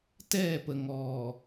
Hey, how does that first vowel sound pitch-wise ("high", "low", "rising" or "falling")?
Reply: falling